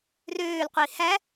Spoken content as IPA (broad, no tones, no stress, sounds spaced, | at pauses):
r øː l qʷ i h æ